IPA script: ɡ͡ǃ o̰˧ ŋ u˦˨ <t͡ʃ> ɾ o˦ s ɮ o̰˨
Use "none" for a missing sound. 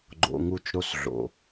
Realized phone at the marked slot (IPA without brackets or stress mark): t͡ʃ